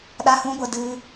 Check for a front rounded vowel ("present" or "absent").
absent